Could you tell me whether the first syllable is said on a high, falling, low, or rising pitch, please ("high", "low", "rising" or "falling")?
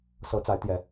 rising